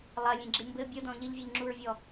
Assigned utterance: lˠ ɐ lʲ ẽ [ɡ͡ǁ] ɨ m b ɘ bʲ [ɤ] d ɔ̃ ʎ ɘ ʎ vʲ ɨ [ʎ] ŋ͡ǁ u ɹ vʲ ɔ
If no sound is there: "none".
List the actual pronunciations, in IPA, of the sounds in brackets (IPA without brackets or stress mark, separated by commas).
ɡ͡ǁ, o, ʎ